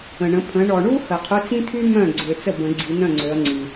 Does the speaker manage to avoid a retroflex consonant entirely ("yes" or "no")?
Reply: no